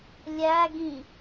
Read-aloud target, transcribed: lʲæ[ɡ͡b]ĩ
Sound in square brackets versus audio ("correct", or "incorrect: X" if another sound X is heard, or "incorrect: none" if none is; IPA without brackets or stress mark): incorrect: ɡ